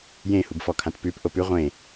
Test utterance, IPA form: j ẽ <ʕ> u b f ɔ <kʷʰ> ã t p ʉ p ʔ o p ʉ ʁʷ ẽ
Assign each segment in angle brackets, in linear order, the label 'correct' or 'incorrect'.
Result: incorrect: h, incorrect: kʰ

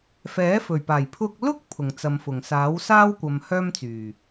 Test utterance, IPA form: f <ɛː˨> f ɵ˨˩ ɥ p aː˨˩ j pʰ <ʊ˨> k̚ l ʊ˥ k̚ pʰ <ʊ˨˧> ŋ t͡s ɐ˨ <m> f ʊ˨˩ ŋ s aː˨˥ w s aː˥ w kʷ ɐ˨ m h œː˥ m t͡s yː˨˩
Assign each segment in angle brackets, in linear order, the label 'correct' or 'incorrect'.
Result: incorrect: ɛː˨˥, incorrect: ʊ˧, incorrect: ʊ˨˩, correct

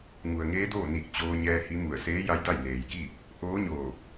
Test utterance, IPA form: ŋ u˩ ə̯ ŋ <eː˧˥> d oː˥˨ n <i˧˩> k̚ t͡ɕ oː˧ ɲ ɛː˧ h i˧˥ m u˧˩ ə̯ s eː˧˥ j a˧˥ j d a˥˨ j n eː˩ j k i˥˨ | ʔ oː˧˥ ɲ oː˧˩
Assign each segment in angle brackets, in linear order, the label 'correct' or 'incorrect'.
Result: correct, correct

